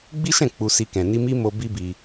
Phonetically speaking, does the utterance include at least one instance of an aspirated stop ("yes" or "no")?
no